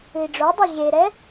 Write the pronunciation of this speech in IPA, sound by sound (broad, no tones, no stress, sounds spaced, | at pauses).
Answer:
ɨ i̯ ɖ͡ʐ o dˤ o ʑ e ɾ ɛ